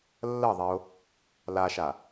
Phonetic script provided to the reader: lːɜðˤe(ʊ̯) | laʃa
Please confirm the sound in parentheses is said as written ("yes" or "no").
yes